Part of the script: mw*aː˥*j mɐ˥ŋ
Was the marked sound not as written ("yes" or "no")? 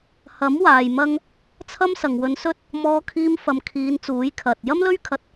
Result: yes